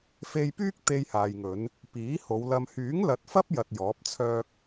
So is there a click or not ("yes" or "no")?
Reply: no